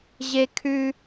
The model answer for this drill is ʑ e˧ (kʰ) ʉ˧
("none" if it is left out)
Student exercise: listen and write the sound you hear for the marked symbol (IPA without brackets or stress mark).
kʰ